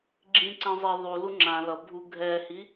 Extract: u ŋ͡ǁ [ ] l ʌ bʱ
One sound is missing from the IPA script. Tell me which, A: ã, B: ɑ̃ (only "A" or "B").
A